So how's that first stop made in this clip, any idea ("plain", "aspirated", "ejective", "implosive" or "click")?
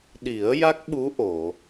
implosive